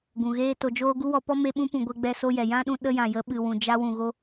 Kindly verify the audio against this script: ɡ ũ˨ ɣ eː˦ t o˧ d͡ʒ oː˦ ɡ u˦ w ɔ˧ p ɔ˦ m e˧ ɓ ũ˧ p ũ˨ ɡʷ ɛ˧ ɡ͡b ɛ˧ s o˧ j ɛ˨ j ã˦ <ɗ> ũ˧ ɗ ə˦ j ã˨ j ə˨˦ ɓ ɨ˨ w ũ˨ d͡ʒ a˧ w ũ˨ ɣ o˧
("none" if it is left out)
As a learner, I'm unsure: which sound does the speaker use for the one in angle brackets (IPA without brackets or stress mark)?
ɗ